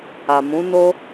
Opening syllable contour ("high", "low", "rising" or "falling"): low